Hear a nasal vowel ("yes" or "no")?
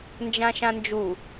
yes